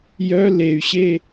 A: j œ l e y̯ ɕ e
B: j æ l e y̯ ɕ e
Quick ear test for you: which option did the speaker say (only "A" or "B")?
A